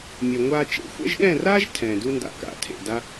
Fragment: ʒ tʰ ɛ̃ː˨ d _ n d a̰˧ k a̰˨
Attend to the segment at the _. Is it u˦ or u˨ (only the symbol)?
u˦